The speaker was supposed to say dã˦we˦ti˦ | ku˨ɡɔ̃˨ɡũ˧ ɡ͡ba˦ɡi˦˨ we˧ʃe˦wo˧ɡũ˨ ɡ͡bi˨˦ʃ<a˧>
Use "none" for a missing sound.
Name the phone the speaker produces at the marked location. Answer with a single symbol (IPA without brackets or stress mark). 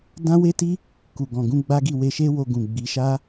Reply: a˦